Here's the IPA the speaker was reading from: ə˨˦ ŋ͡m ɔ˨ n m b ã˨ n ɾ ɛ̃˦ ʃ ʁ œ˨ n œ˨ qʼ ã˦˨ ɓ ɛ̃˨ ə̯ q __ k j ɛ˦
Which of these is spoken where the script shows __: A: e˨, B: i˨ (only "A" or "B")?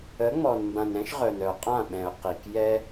B